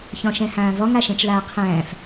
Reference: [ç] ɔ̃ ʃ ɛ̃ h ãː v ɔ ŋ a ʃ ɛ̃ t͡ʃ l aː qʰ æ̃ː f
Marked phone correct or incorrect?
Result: correct